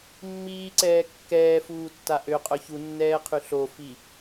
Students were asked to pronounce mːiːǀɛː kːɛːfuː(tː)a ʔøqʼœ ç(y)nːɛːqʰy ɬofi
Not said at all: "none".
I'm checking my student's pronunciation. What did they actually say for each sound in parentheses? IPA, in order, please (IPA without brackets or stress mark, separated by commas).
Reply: tː, u